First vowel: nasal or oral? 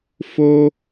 oral